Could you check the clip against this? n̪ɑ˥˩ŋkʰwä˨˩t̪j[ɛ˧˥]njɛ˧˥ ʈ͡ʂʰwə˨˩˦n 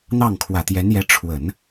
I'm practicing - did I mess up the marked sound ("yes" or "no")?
no